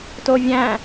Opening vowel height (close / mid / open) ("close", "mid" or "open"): mid